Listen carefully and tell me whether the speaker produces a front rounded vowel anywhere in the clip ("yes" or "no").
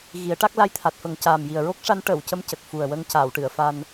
no